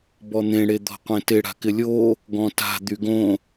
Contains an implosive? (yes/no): no